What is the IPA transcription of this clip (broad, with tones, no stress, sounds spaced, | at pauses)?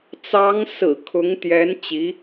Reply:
t͡s ɑ˧˥ ŋ s ɹ̩˨˩ kʰ ʊ˧˥ ŋ t̪ j ɛ˧˥ n t͡ɕ i˧˥